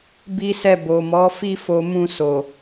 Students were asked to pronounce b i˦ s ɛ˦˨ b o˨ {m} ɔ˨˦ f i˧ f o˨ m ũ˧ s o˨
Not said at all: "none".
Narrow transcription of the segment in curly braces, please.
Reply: m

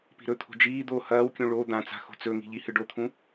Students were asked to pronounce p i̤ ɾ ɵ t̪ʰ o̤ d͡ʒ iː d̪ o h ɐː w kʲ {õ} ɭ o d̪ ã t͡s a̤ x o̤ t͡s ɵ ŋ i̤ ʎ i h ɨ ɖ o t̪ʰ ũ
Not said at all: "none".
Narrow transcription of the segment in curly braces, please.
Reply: ũ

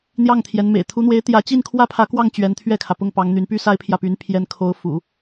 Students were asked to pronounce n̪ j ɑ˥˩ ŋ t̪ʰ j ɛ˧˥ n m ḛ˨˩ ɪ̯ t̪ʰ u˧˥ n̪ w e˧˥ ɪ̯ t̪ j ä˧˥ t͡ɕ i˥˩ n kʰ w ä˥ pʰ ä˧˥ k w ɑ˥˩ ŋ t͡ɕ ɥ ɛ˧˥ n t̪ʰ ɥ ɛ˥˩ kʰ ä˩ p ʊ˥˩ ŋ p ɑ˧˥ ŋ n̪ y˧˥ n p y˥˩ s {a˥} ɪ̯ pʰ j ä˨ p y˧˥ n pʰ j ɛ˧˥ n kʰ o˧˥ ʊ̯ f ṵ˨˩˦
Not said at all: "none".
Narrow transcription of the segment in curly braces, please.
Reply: a˥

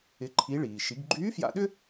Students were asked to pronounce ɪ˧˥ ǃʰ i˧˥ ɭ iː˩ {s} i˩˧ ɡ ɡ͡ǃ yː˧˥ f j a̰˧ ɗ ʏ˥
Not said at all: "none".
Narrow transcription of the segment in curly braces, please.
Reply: ʃ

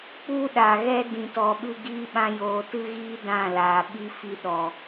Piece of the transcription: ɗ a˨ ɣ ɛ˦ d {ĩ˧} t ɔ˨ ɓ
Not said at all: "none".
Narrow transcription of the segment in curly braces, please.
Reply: ĩ˨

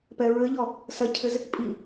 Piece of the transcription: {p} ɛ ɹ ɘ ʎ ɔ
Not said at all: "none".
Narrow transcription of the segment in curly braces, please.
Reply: p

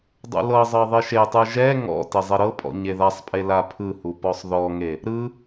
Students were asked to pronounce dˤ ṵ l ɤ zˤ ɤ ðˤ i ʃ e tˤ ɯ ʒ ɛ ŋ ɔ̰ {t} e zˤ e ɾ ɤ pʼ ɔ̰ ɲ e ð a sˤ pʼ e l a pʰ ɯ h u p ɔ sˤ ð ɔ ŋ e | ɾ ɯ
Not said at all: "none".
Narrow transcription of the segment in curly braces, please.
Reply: t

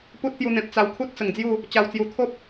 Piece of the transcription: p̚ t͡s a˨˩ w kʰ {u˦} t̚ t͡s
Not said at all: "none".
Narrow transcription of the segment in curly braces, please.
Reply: u˦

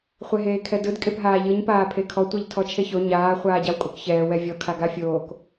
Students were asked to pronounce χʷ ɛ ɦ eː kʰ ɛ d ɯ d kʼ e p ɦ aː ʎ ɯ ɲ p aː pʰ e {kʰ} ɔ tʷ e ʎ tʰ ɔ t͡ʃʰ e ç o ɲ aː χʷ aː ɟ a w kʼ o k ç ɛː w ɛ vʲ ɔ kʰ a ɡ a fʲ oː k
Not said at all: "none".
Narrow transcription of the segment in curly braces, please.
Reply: kʰ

